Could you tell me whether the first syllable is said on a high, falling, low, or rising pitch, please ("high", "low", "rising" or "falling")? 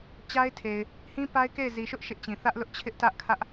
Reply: high